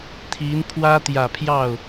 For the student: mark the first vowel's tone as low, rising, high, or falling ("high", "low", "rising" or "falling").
rising